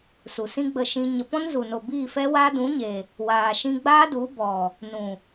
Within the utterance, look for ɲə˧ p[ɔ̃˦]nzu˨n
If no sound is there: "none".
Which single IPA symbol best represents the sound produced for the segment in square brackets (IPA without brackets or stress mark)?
ɔ̃˦